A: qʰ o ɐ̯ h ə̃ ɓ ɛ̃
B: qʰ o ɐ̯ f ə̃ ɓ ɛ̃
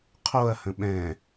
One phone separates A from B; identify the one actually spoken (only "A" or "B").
A